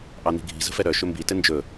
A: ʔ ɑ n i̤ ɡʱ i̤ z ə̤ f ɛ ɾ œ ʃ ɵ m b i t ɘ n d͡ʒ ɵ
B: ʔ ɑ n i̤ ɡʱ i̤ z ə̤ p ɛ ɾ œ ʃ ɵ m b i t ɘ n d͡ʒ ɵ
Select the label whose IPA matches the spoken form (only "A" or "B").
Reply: A